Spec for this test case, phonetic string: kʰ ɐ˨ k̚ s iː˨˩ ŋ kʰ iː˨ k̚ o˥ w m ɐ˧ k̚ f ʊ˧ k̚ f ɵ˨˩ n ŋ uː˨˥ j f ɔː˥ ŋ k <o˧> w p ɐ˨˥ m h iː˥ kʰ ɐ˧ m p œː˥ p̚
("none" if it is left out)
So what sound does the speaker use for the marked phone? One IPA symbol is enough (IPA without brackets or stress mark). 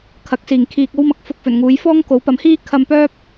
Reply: o˨˥